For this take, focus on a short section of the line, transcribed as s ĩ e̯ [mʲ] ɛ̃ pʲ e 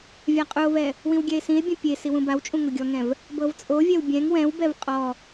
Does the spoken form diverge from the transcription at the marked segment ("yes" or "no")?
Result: yes